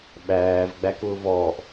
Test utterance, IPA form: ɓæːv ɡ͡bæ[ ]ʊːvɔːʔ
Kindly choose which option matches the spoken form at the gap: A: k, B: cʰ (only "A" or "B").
A